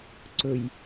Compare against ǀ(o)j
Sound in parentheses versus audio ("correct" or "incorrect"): incorrect